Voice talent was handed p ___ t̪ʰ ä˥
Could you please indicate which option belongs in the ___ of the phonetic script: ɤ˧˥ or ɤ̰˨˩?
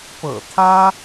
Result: ɤ̰˨˩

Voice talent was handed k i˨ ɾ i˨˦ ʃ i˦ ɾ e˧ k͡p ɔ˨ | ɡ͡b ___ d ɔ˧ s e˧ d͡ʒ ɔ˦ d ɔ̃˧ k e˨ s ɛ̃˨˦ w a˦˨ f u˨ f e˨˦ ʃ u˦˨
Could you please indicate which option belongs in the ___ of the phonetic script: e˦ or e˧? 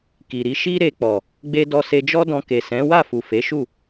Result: e˦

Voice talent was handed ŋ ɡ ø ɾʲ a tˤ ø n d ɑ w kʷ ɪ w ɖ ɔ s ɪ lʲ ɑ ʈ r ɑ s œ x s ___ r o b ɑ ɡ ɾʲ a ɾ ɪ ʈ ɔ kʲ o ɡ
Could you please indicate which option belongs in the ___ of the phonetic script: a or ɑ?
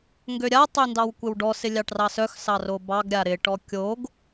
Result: ɑ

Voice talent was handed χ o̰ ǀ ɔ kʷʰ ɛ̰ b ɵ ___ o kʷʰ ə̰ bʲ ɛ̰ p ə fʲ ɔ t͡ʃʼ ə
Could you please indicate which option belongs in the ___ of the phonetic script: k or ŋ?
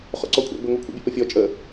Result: ŋ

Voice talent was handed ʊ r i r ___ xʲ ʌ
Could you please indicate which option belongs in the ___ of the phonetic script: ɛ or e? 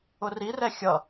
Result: ɛ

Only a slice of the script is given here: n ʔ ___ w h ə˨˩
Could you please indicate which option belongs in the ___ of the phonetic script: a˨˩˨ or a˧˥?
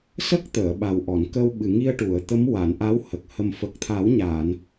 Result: a˧˥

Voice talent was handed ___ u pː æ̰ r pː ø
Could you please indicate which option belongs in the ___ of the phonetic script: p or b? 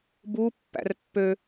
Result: b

